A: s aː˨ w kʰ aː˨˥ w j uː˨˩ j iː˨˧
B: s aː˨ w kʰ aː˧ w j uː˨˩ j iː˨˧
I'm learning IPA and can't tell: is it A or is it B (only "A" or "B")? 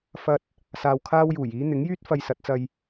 B